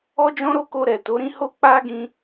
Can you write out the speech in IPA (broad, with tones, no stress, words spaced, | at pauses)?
ɔ˦d͡ʒɔ̃˦ɾo˦ko˧ ɾɛ˨ to˨˦ɾĩ˦ ho˦k͡pa˦ ɡĩ˧